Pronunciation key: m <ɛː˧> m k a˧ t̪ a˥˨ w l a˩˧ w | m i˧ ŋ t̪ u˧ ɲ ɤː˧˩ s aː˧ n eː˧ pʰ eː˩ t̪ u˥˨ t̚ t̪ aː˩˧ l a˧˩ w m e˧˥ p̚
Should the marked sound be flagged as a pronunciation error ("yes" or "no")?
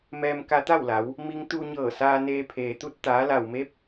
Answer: no